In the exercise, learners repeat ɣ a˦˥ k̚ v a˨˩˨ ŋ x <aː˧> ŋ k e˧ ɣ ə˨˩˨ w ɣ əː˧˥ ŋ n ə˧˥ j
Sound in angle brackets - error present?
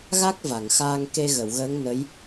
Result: no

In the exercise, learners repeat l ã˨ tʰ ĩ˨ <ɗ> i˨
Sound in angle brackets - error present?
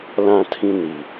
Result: yes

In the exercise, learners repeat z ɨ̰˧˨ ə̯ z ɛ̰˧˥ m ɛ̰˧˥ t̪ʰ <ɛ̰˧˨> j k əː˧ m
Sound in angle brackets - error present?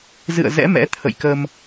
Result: yes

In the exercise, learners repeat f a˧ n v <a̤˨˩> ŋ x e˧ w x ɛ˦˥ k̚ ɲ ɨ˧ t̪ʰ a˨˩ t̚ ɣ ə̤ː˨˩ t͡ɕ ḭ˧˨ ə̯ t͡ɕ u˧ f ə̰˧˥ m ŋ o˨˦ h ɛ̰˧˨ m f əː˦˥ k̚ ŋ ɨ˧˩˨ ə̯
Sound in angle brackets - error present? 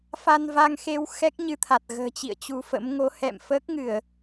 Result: yes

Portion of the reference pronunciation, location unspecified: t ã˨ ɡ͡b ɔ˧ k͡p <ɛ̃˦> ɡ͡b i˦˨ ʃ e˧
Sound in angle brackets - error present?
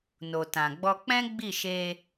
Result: no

